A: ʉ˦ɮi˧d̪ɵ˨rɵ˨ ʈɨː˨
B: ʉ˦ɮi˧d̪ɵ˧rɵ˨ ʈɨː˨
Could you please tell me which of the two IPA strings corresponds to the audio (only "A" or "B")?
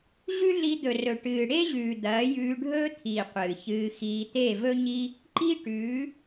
A